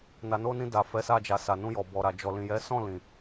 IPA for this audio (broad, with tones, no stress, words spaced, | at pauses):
na˨no˧nĩ˧ da˨ fɛ˨˦sa˧d͡ʒa˨sa˨ nũ˧jɔ˨bɔ˨ɾa˨ d͡ʒɔ˨lĩ˨jɛ˨˦ sɔ̃˦˨lĩ˨